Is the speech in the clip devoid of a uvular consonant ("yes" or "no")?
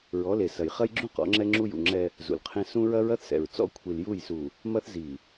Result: no